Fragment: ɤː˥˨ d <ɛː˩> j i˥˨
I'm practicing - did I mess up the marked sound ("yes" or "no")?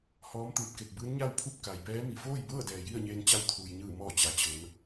no